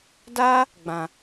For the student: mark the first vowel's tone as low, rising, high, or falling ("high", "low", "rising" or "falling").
high